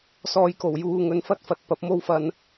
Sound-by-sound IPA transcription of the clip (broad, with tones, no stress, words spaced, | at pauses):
sɔː˧jko˨˩w juː˨ŋɵ˨n fɐ˥t̚fɐ˧t̚ pɐ˨˥p̚mo˥w fɐ˧n